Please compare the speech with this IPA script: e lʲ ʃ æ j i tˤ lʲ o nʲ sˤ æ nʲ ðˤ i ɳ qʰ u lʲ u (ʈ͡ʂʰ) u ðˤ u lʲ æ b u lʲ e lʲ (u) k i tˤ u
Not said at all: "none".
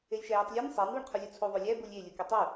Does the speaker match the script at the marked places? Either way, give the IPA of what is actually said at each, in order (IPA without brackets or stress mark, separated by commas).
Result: t͡sʰ, u